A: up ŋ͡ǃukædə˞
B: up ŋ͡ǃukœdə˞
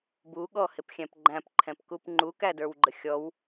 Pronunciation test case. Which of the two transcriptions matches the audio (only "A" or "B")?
A